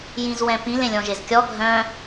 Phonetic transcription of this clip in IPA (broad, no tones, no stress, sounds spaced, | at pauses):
j ĩ z w ɛ̃ p ĩ l ẽ lʲ ɔ̃ ʒ e z kʲ ɔ ɡʱ œ̃